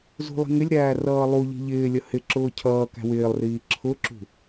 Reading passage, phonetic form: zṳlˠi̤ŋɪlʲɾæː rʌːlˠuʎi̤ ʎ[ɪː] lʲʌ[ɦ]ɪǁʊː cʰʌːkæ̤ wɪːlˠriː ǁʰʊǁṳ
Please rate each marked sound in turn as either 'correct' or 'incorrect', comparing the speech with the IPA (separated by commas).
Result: correct, incorrect